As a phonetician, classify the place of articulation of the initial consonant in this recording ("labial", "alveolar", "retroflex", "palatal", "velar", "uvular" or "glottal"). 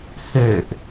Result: glottal